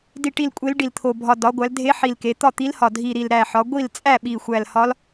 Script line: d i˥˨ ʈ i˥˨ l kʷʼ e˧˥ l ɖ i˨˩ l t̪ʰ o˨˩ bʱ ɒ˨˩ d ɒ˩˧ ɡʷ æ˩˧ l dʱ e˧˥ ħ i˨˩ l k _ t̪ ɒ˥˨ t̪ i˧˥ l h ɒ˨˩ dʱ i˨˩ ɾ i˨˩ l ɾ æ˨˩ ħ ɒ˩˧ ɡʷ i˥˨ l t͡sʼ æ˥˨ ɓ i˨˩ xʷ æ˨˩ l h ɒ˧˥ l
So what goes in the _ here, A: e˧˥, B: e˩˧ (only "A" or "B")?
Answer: B